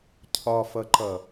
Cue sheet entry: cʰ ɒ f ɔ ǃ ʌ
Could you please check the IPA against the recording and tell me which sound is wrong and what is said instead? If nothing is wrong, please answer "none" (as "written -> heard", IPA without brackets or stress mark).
ɔ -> ʌ